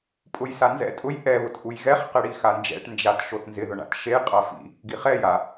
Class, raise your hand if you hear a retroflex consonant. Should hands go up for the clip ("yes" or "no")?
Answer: yes